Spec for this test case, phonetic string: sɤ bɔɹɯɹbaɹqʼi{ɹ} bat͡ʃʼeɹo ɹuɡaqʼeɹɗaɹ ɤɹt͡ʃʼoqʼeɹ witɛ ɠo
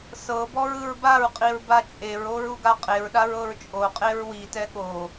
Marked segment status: correct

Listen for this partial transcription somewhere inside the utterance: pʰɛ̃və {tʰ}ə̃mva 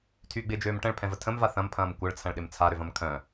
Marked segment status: correct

